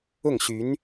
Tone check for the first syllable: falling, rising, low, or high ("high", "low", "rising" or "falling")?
falling